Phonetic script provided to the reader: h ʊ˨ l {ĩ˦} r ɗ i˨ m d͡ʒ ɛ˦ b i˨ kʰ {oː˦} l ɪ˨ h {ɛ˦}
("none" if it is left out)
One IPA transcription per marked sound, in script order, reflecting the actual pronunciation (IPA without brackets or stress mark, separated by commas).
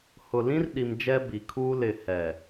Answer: ĩ˦, uː˦, ɛ˨